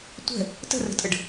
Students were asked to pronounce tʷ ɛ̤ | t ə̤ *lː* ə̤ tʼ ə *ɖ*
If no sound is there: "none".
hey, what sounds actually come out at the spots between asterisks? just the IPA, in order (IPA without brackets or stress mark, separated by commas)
r, ɖ